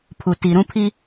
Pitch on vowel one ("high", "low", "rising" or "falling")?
low